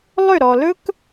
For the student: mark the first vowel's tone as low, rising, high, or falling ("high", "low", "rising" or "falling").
falling